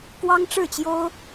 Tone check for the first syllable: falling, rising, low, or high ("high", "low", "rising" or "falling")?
high